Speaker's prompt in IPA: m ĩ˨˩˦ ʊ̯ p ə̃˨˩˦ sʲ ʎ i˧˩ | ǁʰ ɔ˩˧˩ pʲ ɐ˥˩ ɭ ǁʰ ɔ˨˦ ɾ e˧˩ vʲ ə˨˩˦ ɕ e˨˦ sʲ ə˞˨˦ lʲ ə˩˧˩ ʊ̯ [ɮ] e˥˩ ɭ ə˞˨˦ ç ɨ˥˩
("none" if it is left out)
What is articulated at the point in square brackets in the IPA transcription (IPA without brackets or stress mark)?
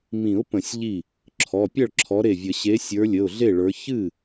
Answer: ɮ